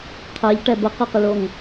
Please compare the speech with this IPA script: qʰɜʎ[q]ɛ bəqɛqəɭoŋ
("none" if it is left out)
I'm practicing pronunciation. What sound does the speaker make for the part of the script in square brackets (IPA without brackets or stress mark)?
ʈ